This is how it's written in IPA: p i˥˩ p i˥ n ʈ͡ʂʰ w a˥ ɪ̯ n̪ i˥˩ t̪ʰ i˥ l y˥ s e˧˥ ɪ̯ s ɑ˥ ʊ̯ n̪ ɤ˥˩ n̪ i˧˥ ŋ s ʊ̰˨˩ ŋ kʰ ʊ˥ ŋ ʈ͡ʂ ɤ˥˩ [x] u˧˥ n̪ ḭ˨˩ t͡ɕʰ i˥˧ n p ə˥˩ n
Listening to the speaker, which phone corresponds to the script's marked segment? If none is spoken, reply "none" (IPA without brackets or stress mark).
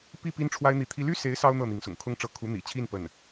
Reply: kʰ